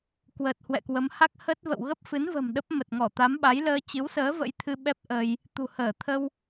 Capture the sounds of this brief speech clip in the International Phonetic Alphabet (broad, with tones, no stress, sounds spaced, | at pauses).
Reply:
k w əː˨˩ t̚ h w ɛ̰˧˨ k w ə˨˦ m h a˦˥ k̚ h ə˦˥ t̚ v ə̰˧˨ w ɣ ə˦˥ p̚ f ɨ˨˦ n v ə̤˨˩ m ɗ ə˦˥ p̚ m ə˨˩ t̚ ŋ ɔ˧˩ t̪ a˨˦ m ɓ a˨˦ j l əː˧ t͡ɕ ɨ˨˦ w s əː˨˦ v ə̰˧˥ j t̪ʰ ɨ˧ ɓ ɛ˦˥ p̚ ʔ əː˧ j | t̪ ṳ˨˩ h əː˧˩ t̪ʰ ə˧ w